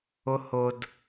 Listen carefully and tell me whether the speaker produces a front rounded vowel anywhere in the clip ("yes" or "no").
no